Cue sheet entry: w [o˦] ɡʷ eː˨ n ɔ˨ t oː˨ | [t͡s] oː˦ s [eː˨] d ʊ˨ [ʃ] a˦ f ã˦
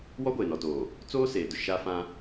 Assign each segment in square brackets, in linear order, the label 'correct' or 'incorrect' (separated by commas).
incorrect, correct, correct, correct